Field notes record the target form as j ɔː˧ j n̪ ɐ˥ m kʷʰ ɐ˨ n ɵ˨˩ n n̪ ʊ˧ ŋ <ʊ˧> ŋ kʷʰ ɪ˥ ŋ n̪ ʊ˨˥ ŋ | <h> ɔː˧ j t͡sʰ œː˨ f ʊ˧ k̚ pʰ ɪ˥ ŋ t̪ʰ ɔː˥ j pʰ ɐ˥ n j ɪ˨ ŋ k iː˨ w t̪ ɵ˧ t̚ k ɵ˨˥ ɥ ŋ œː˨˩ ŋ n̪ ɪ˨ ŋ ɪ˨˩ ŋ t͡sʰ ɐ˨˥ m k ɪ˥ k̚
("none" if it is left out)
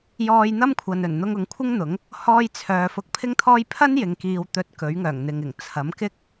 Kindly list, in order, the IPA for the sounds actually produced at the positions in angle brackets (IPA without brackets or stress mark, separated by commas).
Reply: ʊ˨, h